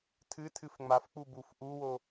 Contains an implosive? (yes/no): no